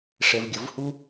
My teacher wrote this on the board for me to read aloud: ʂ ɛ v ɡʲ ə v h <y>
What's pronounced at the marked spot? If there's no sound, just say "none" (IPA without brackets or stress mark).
u